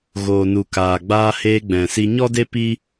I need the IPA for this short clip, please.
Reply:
ɣ oː˨ n u˨ k aː˨ ɡ͡b aː˧ h eː˧ ɡ͡b ɛ̃˨ s i˧ ɲ ɔ˦ d e˦ p i˦

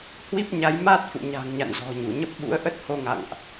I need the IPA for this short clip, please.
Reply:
h w i˦˥ p̚ ɲ a˨˦ j m a˦˥ t̚ f ṵ˧˨ ɲ a̤˨˩ ŋ ɲ a̰˧˨ n z ɔ̤˨˩ ɲ u˧˩ ɲ ə˦˥ p̚ ɓ ṵ˧˥ ə̯ ʔ ə˦˥ t̚ h o˧ ŋ a̰˧˨ ŋ ʔ

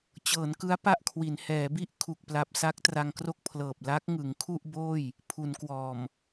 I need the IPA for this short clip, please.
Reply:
t͡ɕ ɤː˩˦ n k ɯ˦˥ a̯ p a˥˩ ʔ kʰ w i˩˦ n h ɛː˩˦ b i˥˩ ʔ kʰ u˨˩ k̚ p l a˨˩ p̚ s a˦˥ k̚ t r a˧ ŋ k r o˥˩ k̚ pʰ l ɤː˨˩ p̚ l a˦˥ k̚ ŋ ɯ˩˦ ŋ kʰ u˥˩ ʔ b oː˥˩ j | pʰ u˩˦ n k w ɔː˨˩ m

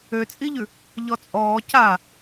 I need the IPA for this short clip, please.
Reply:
ø t͡sʼ i ʎ ʉ | ʎ ɔ t͡sʼ ɔː c a

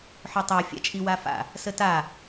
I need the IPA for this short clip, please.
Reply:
ħ ø tˤ ə˞ fʲ a̰ t͡ʃʼ i w a f a̰ | s ə t a

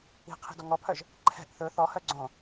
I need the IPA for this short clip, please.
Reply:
i̤ qʰ i̤ d ɔ ŋ ɔ pʰ œ ʒ | ǃʰ ɛ̤ ʔ θ ɵ θ ɔ h œ ɡ͡ǀ õ

